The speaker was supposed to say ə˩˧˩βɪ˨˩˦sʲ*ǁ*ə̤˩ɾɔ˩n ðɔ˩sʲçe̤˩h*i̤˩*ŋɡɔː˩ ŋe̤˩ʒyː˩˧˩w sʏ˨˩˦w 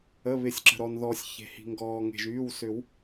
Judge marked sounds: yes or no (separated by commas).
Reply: yes, yes